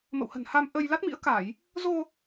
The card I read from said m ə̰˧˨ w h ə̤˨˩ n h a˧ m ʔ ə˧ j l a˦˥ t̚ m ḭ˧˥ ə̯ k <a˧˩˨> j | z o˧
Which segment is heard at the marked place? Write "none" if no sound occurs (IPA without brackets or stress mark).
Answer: a˧˩˨